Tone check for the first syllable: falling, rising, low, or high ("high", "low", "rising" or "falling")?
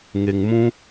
low